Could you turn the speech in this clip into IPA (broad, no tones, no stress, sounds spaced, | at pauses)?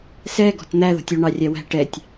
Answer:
s ɛ ɡ ɔ̤ t n̪ æ ð ɔ̤ tʲ u ɳ ɑ rʲ æ w æ̤ ʈ ɛ tʲ